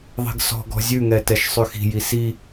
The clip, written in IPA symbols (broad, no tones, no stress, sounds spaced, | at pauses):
ðˤ i̤ ɡ s ɔ̤ ɡ ɔ̤ zʲ ʉ ŋ ɛ t ɛ ʃ sˤ ʉ x i̤ j i s i